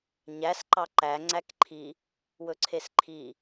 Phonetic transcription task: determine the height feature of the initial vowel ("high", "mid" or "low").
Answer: low